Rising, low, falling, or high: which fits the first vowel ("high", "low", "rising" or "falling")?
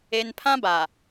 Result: high